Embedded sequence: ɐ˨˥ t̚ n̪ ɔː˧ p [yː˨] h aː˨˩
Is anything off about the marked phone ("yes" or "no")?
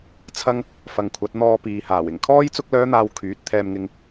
yes